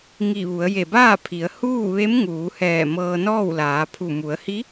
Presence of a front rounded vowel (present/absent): absent